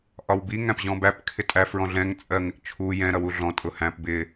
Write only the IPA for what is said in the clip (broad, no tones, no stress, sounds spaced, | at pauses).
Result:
ʔ ɒ w b i ŋ æ̃ p ʑ ɔ̃ b æ p kʰ ɪ tʼ æ f ɹ ɔ̃ ɮ ɛ̃ ŋ t͡sʼ ɜ ŋ ɪ ʔ t͡ʃʰ u j ɛ̃ ɾ ʌ w u ɮ ɔ̃ tʼ ʊ h æ̃ p b ɪ